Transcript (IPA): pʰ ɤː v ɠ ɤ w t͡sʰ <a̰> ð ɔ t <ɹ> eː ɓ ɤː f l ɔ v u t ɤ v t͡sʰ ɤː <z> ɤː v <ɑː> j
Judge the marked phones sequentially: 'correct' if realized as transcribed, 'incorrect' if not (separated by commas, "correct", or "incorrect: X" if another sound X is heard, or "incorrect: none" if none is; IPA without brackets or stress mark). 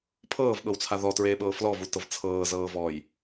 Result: incorrect: a, correct, correct, incorrect: ɔː